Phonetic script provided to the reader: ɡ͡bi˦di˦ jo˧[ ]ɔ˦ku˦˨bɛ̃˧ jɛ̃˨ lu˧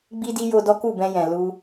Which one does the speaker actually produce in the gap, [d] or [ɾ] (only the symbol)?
d